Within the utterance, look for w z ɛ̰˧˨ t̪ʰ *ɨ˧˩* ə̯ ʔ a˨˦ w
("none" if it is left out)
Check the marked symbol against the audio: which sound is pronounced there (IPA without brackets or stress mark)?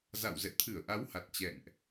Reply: ɨ˧˩